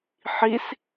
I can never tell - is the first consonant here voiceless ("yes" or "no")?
yes